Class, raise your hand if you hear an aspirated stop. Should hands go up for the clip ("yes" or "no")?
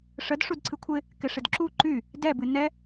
yes